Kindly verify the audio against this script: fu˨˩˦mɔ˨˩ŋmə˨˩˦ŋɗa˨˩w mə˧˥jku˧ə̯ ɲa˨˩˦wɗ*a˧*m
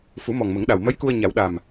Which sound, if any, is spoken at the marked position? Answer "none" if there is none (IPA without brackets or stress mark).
a˨˩